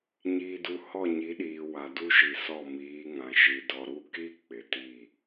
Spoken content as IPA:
ɲ iː˨ d u˨ h ɔ˦˨ ɲ i˨˦ ɗ iː˨ w a˨ d u˦ ʃ i˨ s ɔ˦˨ m iː˨˦ ŋ ã˨ ʃ i˨ d ɔ˨ ɾ u˦˨ k i˦ k͡p ɪ˨ t i˦˨

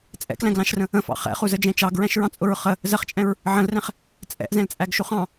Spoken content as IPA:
t͡sʼ ɛ̰ k l æ̃ ɡ l ɑ̃ ʃ r ə̃ | ə̃ f ɑ̰ χ ɛ̰ χ u z ə d͡ʒ ɛ̃ t͡ʃ ɑ ɡ ɹ æ̃ ʃ ɹ ɑ̃ t͡sʼ ʊ ɹ χ ə | z ə χ t͡ʃʼ ɛ̃ ɹ | ʕ ə̃ l r ɛ̃ χ | t͡sʼ ɛ̰ ʔ z ɛ̃ l t͡sʼ æ ɡ ʃ u χ ɑ̃

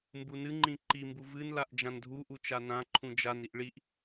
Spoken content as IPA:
m b u n ɨ ŋ͡ǃ ĩ ǃ i m b u v ɨ n l a ʔ d͡ʒ ã n dʱ u ʔ u t͡ʃ a n ã ǃʰ ũ d͡ʒ a n i ʔ ɭ i ʔ

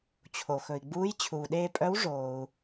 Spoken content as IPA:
t͡ɕʰ o˩ x ɵ˩ i̯ ɡ͡b uː˧˥ j t͡ɕʰ uː˩ ɗ eː˧ pʼ œ˧˥ w ʐ oː˩ u̯

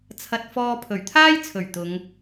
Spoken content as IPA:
t͡sʰ ɐ˧ t̚ f ɔː˧ pʰ ɵ˨˩ ɥ t̪ʰ aː˥ j t͡sʰ ɵ˨˩ ɥ t̪ ʊ˨˧ ŋ

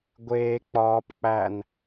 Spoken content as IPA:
ɡʷ eː k͡p ɒː p k͡p æ n

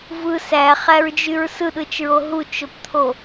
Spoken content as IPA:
v ɯ s æ χ æ ɹ d͡ʒ y ɹ s ɯ ɗ ɯ t͡ʃ ɹ o ɦ u t͡ʃ o p t̪ʰ o

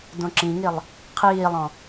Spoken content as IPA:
d õ ǁ ĩ ŋ i lˠ | qʰ iː lˠ ɔ̃

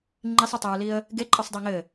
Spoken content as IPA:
ŋ͡ǃ i sˤ ɘ tˤ ɘ ɹ l i ə̯ | ɡ e ǃʼ ə sˤ dˤ i ŋ ɘ

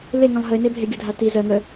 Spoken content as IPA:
l e ŋ ə̃ lˠ ɦ ə ɪ̯ n e bʱ e ɡʲ ə dʱ a t i z ɜ ŋ ə

